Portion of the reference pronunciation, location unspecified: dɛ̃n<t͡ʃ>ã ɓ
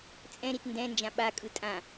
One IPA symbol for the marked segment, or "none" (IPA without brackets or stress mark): d͡ʒ